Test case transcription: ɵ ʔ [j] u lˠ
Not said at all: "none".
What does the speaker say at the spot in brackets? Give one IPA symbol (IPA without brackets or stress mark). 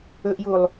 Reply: j